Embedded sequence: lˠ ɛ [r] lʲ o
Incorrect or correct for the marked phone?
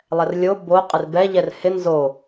correct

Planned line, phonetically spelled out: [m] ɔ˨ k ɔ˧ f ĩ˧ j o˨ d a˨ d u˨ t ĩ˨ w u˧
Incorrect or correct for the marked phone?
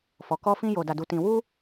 incorrect: f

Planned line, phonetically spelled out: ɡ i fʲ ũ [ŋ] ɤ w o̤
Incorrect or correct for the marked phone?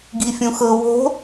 incorrect: x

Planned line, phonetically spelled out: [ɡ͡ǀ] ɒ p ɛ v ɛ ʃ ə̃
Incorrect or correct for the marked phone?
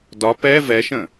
incorrect: d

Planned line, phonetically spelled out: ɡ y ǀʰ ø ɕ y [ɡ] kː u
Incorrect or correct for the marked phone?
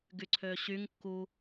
incorrect: ŋ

